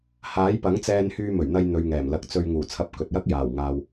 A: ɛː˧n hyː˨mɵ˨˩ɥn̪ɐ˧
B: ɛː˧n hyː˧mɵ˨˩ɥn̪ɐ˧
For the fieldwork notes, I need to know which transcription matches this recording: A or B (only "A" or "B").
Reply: B